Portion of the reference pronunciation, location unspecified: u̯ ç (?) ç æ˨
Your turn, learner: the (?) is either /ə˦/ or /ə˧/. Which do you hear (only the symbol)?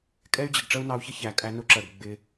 ə˦